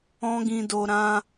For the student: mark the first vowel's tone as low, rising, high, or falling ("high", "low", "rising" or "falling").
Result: high